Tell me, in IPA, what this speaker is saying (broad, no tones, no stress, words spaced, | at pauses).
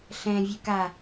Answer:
ɬɛ̃vʲø ka